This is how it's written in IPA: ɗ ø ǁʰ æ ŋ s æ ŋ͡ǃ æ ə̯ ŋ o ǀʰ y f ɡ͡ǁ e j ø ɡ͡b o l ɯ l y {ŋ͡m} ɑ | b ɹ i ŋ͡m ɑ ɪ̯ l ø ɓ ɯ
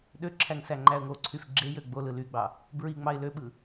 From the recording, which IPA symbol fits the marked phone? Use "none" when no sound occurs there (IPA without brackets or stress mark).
ɡ͡b